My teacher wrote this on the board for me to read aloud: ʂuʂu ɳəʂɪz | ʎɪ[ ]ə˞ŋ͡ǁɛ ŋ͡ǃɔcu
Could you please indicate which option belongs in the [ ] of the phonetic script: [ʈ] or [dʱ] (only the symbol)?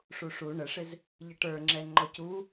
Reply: ʈ